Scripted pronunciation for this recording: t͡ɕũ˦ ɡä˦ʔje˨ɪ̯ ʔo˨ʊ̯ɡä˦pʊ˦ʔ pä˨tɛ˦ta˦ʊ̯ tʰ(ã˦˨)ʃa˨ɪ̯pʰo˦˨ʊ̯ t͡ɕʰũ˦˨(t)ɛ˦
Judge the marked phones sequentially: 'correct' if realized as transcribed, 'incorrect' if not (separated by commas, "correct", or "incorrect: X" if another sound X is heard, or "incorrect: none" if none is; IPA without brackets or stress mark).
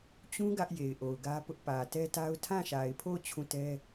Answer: correct, correct